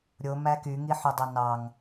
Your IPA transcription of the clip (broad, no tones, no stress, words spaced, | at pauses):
ɾʲomæ kyŋiħydˤo nɑŋ